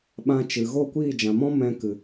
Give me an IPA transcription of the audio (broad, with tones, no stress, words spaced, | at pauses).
ɓã˧t͡ʃɨ˨ ɣo˦˨kʷiː˦˨d͡ʒã˨mɔ̃˦ mɛ̃˧kɨ˨